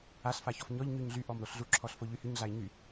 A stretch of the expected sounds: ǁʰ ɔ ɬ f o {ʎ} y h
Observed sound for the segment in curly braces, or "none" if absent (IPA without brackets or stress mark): ʎ